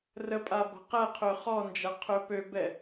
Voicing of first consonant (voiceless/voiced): voiced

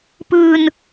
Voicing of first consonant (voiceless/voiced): voiceless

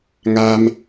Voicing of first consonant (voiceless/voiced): voiced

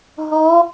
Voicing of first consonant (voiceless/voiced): voiced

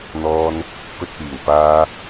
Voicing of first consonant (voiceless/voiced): voiced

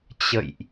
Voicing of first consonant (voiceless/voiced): voiceless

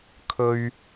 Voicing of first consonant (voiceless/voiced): voiceless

